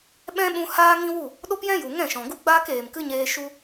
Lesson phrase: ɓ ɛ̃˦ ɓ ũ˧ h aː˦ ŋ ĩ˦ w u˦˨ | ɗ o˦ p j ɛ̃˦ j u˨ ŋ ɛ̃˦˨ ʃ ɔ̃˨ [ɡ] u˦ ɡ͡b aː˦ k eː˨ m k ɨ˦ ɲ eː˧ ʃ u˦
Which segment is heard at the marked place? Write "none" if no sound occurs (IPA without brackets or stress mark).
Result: ɡ